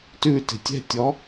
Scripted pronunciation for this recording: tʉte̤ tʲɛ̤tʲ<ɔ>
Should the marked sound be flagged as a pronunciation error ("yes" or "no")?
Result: no